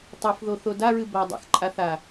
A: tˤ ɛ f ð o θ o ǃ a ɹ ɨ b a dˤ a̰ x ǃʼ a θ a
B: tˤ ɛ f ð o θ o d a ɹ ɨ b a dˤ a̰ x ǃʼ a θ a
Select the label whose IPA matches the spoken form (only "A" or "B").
B